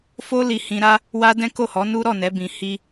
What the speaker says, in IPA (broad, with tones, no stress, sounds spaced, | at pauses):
f o˦ l i˧ h ĩ˧ ɾ a˦ | w a˦ d ɛ̃˦ k o˦˨ h ɔ˨˦ n u˦ ɾ ɔ˦˨ n ɛ˨˦ b ĩ˧ h i˦